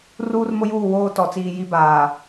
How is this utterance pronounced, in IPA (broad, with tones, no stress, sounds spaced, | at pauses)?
r uː˦ r m ʊ˦ j uː˦˨ w oː˦ t ɔ˨ t͡s iː˨ j i˦ b aː˨